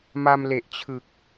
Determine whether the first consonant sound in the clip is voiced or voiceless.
voiced